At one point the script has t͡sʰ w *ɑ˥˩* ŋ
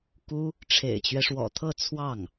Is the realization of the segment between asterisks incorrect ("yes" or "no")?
no